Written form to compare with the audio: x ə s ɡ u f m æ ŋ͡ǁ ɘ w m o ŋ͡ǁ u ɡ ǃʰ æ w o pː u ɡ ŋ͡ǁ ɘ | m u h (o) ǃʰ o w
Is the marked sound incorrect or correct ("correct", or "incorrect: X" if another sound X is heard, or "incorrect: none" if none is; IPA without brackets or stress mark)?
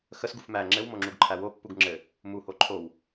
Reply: correct